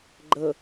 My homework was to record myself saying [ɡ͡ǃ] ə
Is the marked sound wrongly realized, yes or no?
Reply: no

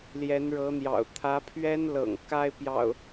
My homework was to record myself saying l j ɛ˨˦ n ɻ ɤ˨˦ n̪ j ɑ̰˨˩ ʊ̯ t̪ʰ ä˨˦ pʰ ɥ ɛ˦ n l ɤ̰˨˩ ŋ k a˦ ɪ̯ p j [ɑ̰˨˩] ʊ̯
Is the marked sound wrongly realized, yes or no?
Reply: no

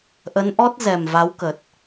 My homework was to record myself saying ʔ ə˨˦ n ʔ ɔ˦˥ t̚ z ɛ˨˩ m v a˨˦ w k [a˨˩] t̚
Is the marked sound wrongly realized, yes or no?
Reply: yes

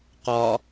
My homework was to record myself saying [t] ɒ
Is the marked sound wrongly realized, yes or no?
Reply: yes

